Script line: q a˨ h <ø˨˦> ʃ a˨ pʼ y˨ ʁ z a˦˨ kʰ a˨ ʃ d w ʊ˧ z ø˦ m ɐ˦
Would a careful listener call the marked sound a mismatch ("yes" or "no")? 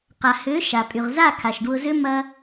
no